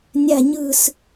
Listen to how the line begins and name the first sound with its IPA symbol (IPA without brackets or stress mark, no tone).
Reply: nʲ